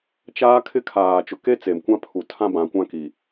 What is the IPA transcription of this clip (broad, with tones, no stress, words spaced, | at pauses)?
t͡ʃaː˦ kʰɪ˦kʰaː˨ t͡ʃʊ˨ke˦t͡se˨m kʷã˦pʰu˨ tʰã˦bã˨kʷã˦ki˨